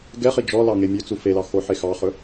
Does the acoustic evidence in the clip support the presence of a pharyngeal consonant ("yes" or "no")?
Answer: yes